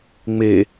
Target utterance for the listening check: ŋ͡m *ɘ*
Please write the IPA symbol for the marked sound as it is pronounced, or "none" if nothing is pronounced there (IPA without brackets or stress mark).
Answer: e